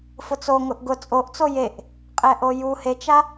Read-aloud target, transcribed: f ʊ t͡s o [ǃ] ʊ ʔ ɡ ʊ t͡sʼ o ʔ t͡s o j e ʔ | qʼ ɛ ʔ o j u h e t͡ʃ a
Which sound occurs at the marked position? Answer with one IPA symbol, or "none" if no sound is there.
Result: ŋ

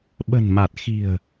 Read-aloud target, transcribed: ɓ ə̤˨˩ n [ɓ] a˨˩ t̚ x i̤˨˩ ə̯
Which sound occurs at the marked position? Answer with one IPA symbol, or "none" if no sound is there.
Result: m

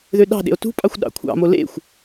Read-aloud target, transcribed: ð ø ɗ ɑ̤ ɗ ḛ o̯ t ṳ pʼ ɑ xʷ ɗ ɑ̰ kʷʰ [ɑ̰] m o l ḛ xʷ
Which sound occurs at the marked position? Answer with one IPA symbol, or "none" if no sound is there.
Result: ɑ̰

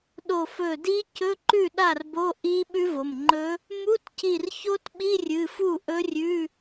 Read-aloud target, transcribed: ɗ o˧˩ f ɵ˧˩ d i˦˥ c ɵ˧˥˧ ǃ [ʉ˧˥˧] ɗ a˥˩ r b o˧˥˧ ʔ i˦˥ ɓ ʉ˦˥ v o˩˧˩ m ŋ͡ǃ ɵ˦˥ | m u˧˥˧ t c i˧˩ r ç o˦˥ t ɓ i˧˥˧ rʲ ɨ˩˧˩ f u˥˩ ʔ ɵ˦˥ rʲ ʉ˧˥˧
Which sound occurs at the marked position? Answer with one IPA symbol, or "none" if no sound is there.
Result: ʉ˥˩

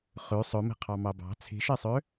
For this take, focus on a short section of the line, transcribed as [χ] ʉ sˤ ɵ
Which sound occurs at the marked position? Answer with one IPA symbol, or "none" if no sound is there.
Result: χ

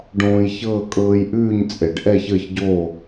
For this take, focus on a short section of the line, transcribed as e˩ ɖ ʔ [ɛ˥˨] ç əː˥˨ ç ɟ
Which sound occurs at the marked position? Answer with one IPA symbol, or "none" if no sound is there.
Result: ɛ˥˨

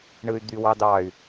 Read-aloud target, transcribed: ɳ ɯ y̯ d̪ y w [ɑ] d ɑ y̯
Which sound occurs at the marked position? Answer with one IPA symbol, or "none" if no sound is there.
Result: ɑ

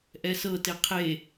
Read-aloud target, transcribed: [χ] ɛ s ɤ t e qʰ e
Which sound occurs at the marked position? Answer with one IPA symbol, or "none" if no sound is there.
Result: ʔ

